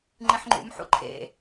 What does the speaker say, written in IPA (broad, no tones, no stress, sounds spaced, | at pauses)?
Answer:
ŋ͡ǃ ĩ ħ ŋ͡ǃ ṵ m ħ ṵ ǃʰ ḛ